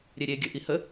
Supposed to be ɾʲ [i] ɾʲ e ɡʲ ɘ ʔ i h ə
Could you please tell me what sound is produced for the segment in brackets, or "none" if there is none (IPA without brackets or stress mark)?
e